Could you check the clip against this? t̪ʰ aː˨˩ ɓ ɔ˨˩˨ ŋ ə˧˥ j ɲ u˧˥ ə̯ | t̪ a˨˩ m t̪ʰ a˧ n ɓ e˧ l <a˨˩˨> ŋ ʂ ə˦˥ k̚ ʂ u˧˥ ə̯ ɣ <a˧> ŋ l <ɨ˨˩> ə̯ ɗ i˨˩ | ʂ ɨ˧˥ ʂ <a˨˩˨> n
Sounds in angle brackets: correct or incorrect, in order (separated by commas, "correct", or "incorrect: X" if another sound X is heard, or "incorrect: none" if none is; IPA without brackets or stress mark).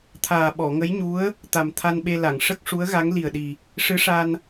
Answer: correct, incorrect: a˧˥, incorrect: i˨˩, incorrect: a˧